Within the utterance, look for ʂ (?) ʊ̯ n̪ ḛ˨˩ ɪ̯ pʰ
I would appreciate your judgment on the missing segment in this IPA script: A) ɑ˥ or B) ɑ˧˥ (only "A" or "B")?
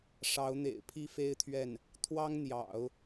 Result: B